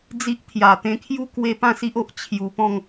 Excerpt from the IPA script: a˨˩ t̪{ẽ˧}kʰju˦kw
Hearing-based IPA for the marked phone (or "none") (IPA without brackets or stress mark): ẽ˧